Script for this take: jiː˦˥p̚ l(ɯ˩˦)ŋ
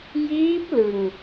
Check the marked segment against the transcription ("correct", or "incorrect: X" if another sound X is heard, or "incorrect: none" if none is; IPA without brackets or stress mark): incorrect: ɯ˧